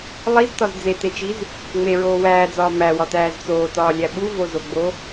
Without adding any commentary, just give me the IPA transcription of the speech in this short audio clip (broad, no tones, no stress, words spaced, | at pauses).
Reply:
lˠiztɒz d͡zetet͡ʃiz | ŋ͡meɹoː wæːd͡zɒː mæwɒtæːz t͡soːtɒːlʲæ ɓuvozoɡ͡bo